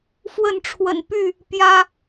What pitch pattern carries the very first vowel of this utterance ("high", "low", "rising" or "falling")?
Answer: falling